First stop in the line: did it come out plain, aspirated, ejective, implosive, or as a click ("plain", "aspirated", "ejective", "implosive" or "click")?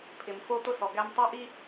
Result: aspirated